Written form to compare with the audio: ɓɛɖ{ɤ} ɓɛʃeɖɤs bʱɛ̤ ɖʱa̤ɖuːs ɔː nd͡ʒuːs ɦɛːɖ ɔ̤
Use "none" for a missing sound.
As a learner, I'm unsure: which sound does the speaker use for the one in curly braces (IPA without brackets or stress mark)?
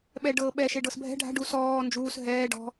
ɤː